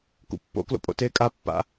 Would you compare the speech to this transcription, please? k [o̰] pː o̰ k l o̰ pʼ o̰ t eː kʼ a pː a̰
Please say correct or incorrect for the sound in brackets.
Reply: incorrect